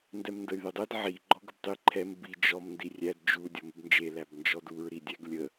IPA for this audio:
n d ɛ m n d ə y̯ ð ɪ dˤ ɛ d ʕ i ɡ͡ǃ ɔ ɡ ə b tˤ i ǃʰ ɛ m b i d͡ʒ ɔ m n d i rʲ æ d d͡ʒ u dʲ ɔ m ɪ b n d͡ʒ e l æ b n d͡ʒ ɔ d u ɹ ɾ i dʲ æ ɡ lʲ ə

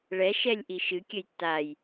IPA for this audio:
ɭ ɛ ʃ ɛ lʲ ʔ i ʃ ɨ kʲ ɘ j tː a j

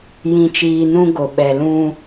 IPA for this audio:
j ĩ˨ t͡ʃ iː˨ n ũ˦ ɡ o˨ ɓ ɛ˨ l ũ˦

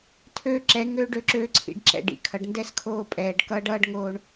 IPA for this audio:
tʰ øː˦ ǁ ɛ˨˦ ŋ øː˦ ɖ ø˨ ǁ øː˦ ǀʰ ḭ˨ ɖ ǁ ɛ̰˨ ɖ ḭ˨ kʰ ʌ˨ ɖ n d ɛ˦ s kʰ oː˦˨ pʼ ɛː˨ ɖ k ʌː˦ ɖ ʌː˦ ɖ ŋ oː˦ ɳ

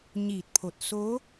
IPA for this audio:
ɲ iː˧˩ t̚ pʰ o˧˩ t̚ s o˧˥

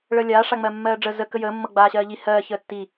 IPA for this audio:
ɭ əː lʲ aː ʂ a ŋ͡m ɜ mː ɜː ɖ͡ʐ ə z ə k ə j əː mː ɤ ɡ͡b aː ɕ ɜː ʎ i h ɜː ç əː tː i

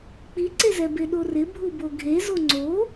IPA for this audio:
k͡p i ǀ e z ɛ b e ɗ o r ɪ bʱ u b o ɡʱ e z o ŋ͡ǀ o

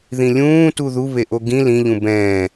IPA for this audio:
ð ĩ lʲ ũː t u ð u β e ʔ o ɡ ĩ l ĩ ʎ ũ b ɛ̃ː

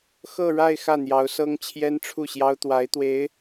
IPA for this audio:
x ɤ˥˧ ɻ a˥˧ ɪ̯ x ä˥˩ n̪ j ɑ˧˥ ʊ̯ s ɤ˥ ŋ t͡ɕʰ j ɛ˥ n ʈ͡ʂʰ u˥˩ ɕ j ɑ˥ ʊ̯ t̪ w a˧˥ ɪ̯ t̪ w e˧˥ ɪ̯

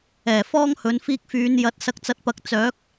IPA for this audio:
ɛː˨˩ f ɔː˥ ŋ h ɵ˨˧ n f iː˧ k̚ f yː˨˧ n j ɐ˨˥ t̚ s ɐ˨˥ k̚ t͡s ɐ˨˥ t̚ p ɐ˨˥ k̚ t͡s œː˨˥ k̚

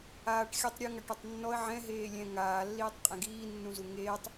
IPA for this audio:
aː ʈ xʲ ɤ tˤ ɾʲ u ŋ a ʈ ɤ tˤ nː ɔ ə̯ ʕ ɛ̃ ɦ eː lʲ ɛ̃ ŋ aː lː iː tˤ qʼ ɛ̃ ɡ iː nː ũ z u ŋ eː tˤ

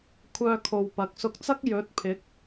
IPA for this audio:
kʷʰ œː˧ kʰ o˨ w p ɐ˨˥ k̚ s ʊ˧ k̚ t͡s ɐ˥ k̚ j ɵ˨˥ t̚ pʰ ɪ˨˥ k̚

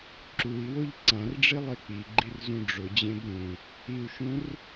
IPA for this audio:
ǁ u i̯ w o ʎ ǀ ã r ɖ͡ʐ i lˠ e k͡p i ɡ͡ǃ i r z ũ ɖ͡ʐ ʊ d͡ʑ ẽ b ɾ ũ | i u̯ ʃ ũ r

